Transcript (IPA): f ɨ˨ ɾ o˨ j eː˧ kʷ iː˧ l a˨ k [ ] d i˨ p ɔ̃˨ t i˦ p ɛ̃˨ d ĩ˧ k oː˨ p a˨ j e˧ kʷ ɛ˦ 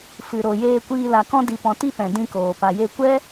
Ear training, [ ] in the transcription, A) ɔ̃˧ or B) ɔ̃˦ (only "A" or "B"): A